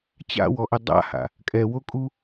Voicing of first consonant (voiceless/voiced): voiceless